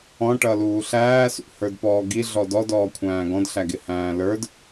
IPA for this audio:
ɔ̃ ʈ ʌ l uː ɬ æː s ṵ h ə˞ d p ɔː ɡ i ɮ ɔ d ɔ d ɔː kʷʰ æ̃ː ɡ ɔ̃ d ɬ æ ɡ ɪ h æ̃ː l ə˞ d

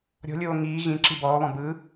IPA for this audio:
ɾʲ ɔ̤ lʲ oː ŋ iː ɣ ĩ ǁ i b ɔː β ɔ̃ b ɯ

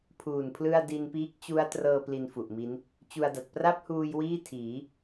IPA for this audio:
pʰ uː˨˩ n pʰ l ɯ˥˩ a̯ d i˧ n p iː˦˥ k̚ t͡ɕ u˦˥ a̯ t r ɤː˧ p l i˧ n f u˨˩ ʔ m i˦˥ n | t͡ɕ u˧ a̯ d a˨˩ t̚ p r a˥˩ p̚ h uː˧ j w iː˥˩ tʰ iː˩˦

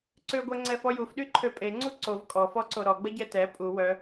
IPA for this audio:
ǀ ø ɡʷ ɛ ŋ͡ǀ ɛ f ɔ j u f ɗ y ǃʰ ø pʼ e ŋ͡ǀ u ǀ o v kʼ ɔ f ɔ ǀ o ɾ ɔ ɡ͡b ə ɟ ɛ t ɛ pʼ u w œ

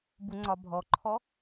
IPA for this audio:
b u ŋ͡ǀ ɒ bʱ ɔ ǃʰ ɔ

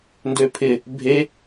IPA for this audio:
n d ø pʰ ɪ | bʱ e

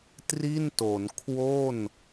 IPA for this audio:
t r i˥˩ n t o˩˦ n kʰ w o˥˩ n

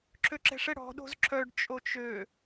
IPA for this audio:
ǁʰ ø ǁ ɛ̤ ʂ ɛ ɽ ɔ̤ ɗ o̤ z ǁʰ œ ɖ t͡ʃʼ o t͡ʃ ø

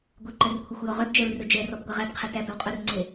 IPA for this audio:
ɡʷ ɛ ǃ œ r kʷʰ e xʷ j ɔ ʁ œ b d͡ʒ ɛ ɹ r ɵ d͡ʒ ɛ r ɔ b ɡʷ æ ʁ æ b qʰ ɛ t æ b œ w qʼ ɵ r ŋ͡ǀ e

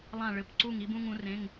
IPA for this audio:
lˠ ã˧˩ ɭ ɘ˩˧˩ p ǀ u˧˩ ŋ i˧ b ũ˧ ŋ ũ˩˧ r ẽ˩˧˩ ŋ

